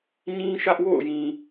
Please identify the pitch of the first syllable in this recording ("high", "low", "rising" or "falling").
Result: high